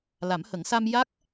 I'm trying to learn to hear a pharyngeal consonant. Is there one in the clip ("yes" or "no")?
no